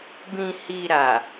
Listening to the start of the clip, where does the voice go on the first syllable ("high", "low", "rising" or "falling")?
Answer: low